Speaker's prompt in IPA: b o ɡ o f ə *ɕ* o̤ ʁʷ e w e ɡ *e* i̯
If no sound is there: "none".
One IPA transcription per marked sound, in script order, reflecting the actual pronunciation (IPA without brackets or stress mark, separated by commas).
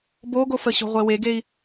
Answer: ɕ, e